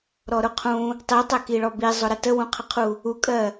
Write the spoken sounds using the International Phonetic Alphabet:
ɾ ɔ ɾ ʊ qʰ ũ | tˤ i tˤ æ k i ɭ ɔ b i zˤ ʊ ɾ ə t ə w ũ qʰ ə qʰ u | u kʼ ɜ

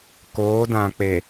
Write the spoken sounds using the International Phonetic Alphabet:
k oː˨˦ d ã˨ k͡p e˨

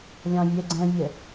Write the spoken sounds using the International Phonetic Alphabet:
lʲ ɑ̃ vʲ ɛ ɡ͡ǀ ɛ̃ vʲ ɛ

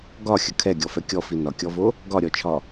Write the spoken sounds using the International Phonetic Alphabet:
ɡ ɒ xʲ ə kʰ ɛ ɡʲ ɔ f ɛ kʲ ɔ f i n ɒ kʲ ɔ v o | ɡ ɒ ɾʲ ɔ t͡ʃʰ ɒ

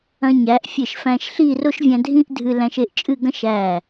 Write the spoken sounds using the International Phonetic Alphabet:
ɐ̃˧ ɲ æ˩˧ ʔ fʲ e˧˩ ʃ f æ̃˧ ʃ ɬ i˥˧ r o˥ ʃ vʲ æ̃˧ dʱ ĩ˥ ʔ dʱ ɨ˧ l æ̃˧ ʃ e˥˧ ʔ t͡ʃʼ ɨ˥˧ ɡ ɐ̃˥ ʃ æ˧˩

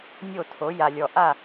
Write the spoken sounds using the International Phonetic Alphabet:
nʲ o˦˨ tʰ o˨˦ j a˨ lʲ ɔ˨ ʔ a˦˨

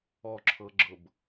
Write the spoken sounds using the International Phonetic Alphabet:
ɔ ǁʰ ɤ ɡ͡ǁ ɤ b

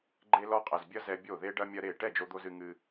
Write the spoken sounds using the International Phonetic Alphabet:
ɡ͡ǃ e˦ l ɔ˦ qʼ ɛ˧ z bʲ ɐ˦ z ɛ˧ bʲ o˦˨ ð e˦ ɖ ɐ˦ mʲ ɐ˦ ɾ e˦˨ ʈ ɛ˦˨ d͡ʒ o˧ d̪ o˧ z ɨ˧ ŋ ɨ˦

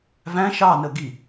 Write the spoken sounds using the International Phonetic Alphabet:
v æ̃ ʃ ɑ n ə ɡ i

